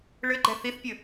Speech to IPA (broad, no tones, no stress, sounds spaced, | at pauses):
ɭ ɘ ɡ͡ǃ ɛ θ i θ pʲ ɘ